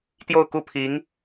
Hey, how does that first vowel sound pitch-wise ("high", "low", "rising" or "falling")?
falling